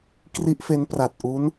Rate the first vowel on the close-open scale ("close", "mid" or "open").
close